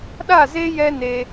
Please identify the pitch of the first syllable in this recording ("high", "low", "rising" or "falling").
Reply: falling